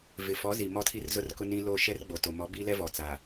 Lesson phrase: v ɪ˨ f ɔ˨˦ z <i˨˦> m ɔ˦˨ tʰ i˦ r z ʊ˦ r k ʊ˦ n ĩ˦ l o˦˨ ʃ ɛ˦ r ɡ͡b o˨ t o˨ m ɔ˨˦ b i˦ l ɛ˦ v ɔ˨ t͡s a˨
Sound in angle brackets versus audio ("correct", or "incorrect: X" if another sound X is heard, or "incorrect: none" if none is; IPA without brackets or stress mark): incorrect: i˨